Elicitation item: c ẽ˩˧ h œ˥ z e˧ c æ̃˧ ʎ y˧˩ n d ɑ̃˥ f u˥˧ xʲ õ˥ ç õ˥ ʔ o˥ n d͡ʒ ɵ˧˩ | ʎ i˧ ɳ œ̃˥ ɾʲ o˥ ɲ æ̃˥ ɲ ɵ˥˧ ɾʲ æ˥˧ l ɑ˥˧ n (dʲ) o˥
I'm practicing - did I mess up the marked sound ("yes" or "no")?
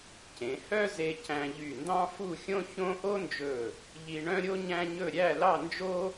yes